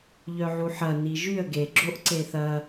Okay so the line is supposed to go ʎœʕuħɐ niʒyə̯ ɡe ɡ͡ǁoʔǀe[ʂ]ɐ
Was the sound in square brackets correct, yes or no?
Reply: no